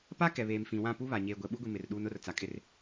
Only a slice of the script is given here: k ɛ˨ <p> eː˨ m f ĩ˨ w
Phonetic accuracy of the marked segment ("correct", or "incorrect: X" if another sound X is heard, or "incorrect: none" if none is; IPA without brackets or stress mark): incorrect: β